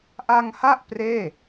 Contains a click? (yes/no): no